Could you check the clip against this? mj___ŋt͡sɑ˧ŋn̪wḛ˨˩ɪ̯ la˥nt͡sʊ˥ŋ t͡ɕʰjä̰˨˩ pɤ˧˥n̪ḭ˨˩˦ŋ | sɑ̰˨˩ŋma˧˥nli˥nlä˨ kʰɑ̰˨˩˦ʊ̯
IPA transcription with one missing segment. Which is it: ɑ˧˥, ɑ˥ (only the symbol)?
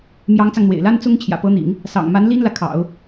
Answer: ɑ˧˥